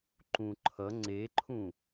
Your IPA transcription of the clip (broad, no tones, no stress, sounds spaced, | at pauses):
ǃ ũ ǃʰ ʌ ŋ͡ǀ e ǃʰ ũ